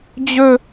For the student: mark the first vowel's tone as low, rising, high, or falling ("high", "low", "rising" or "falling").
high